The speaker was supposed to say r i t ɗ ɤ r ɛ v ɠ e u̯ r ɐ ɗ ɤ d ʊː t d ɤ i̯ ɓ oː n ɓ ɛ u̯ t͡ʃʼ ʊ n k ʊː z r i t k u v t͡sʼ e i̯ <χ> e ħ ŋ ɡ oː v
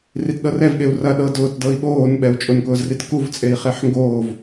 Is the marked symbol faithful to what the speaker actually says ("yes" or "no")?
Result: yes